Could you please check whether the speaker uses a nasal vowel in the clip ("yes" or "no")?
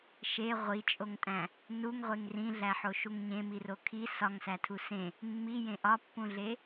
yes